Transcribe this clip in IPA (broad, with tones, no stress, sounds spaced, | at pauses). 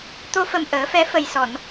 t̪ o˧ f ə˨˩ m ʔ əː˨˩˦ f ɛ˧˥ f ə˨˩ j s ɔ˨˩˨ n